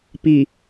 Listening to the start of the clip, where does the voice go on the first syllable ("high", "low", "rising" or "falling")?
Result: low